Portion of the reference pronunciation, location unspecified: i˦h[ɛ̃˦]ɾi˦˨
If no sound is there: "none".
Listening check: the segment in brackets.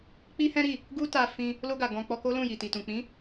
ɛ̃˦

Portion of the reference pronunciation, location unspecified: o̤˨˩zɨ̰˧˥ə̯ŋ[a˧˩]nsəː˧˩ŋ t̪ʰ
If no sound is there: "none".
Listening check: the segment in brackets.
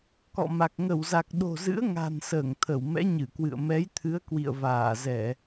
a̤˨˩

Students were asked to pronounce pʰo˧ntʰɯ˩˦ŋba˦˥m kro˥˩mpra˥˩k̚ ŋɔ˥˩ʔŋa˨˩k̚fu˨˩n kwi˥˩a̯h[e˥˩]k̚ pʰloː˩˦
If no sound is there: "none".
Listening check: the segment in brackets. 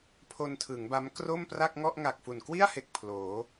e˨˩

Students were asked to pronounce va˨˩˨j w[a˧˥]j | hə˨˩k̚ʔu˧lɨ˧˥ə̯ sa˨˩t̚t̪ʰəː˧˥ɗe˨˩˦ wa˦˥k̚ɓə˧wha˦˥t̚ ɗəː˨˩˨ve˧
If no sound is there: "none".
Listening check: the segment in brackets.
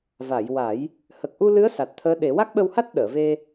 a˨˩˦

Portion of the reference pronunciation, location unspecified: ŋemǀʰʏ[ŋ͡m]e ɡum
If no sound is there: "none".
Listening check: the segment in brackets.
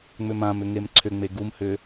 ŋ͡m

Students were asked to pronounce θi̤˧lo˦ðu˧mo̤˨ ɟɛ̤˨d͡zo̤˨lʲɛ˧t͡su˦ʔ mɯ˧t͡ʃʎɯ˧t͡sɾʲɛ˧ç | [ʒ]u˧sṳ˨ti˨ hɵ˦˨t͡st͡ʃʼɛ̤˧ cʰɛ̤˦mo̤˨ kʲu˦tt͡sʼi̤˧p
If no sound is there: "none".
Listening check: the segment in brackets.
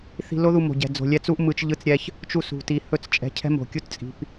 t͡ʃ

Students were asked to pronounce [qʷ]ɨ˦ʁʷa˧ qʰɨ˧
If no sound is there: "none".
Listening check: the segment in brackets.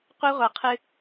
qʷ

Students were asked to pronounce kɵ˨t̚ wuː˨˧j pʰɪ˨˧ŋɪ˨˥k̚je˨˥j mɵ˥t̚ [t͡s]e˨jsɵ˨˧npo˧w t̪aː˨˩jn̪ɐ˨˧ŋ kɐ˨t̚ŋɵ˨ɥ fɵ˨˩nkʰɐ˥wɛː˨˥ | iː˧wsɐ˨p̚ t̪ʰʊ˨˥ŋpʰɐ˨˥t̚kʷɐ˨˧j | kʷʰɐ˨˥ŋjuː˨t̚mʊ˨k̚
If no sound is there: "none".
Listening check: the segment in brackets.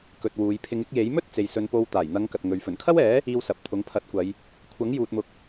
t͡s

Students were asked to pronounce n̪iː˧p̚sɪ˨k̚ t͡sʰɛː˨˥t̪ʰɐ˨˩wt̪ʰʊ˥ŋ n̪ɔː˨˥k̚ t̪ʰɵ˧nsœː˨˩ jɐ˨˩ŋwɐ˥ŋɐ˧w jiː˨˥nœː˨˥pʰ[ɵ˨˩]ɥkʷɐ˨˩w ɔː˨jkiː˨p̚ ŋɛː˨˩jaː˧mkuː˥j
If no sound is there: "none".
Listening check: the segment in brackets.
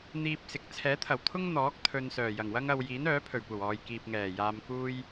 ɵ˨˩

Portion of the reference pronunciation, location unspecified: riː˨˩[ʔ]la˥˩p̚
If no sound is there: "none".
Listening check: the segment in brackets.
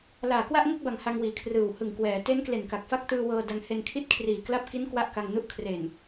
k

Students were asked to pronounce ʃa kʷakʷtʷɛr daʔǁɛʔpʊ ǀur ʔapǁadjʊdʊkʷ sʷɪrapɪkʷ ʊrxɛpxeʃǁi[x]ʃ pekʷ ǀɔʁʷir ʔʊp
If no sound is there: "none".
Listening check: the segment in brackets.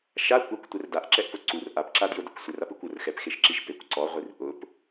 none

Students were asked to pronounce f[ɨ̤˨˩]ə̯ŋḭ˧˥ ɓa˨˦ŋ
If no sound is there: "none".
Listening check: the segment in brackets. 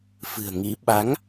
ɨ̤˨˩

